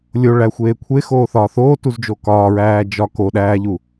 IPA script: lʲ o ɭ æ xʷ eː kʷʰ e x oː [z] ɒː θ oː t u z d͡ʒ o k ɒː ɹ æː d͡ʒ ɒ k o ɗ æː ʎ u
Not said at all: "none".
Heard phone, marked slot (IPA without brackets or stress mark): θ